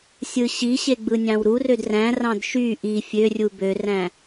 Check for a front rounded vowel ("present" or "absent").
present